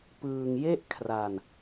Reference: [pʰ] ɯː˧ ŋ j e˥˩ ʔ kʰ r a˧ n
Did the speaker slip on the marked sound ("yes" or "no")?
yes